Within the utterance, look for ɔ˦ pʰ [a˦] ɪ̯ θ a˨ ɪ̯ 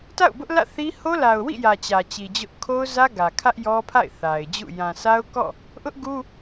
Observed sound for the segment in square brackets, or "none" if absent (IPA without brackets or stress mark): a̰˦˨